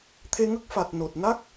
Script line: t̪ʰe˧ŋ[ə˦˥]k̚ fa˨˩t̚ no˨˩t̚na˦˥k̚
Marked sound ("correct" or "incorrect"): correct